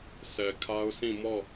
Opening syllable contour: low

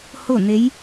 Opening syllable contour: falling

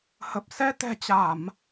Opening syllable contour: low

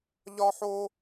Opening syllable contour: high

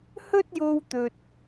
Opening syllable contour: high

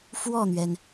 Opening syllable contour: falling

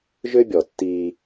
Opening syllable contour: high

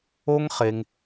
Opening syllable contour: high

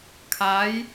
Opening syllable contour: rising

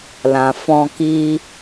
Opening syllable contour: low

